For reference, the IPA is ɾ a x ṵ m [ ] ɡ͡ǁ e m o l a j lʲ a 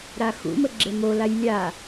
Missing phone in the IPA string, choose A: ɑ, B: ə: B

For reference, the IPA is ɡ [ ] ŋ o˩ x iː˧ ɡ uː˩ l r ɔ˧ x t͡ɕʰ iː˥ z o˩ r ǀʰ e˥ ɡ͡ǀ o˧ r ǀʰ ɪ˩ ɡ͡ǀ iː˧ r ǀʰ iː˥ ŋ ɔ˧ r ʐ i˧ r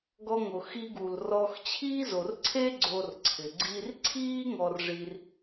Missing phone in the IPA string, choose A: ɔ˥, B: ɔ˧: B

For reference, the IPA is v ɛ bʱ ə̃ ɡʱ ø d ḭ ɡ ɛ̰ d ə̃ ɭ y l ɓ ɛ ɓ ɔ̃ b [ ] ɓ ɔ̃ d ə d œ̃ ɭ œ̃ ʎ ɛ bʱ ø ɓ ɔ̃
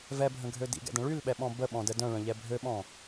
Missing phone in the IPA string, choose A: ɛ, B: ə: B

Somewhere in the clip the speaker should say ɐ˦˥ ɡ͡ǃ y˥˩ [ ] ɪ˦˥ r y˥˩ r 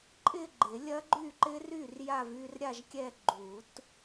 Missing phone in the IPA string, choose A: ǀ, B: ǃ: B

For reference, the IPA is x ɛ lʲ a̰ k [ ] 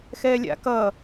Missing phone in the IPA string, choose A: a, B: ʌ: B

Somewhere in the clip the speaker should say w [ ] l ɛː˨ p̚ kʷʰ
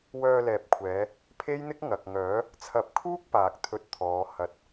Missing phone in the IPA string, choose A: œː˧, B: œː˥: A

